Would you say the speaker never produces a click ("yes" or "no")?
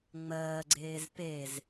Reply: no